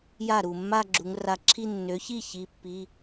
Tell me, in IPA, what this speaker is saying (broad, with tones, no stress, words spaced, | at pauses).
ja˥˩ɾu˧˩ mːa˥˧ɡ͡ǁu˩˧ŋra˧˩ǁʰi˥˧ nːø˩˧çi˥˩ çi˩˧˩pːi˩˧˩